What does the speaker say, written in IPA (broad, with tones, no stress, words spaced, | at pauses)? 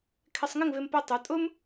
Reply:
kʰɪ˧sˤŋɪ˥˧ŋvɪ˧m pʊ˧tˤu˩˧tʼʊ˥m